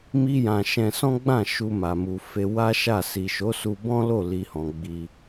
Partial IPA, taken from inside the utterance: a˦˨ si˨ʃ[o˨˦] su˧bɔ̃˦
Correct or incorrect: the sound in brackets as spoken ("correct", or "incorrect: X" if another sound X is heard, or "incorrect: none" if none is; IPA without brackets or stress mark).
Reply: correct